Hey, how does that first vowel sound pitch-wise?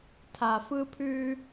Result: low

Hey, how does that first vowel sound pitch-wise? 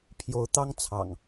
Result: rising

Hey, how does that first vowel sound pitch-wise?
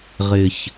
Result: low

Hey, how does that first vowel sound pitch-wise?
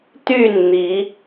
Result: falling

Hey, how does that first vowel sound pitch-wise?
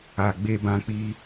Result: low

